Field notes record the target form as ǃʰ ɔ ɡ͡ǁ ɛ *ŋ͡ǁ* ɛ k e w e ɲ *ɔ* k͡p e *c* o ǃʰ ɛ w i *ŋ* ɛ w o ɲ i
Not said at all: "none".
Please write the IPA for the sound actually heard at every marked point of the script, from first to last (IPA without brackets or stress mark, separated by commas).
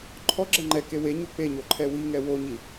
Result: ŋ͡ǃ, o, ɲ, ŋ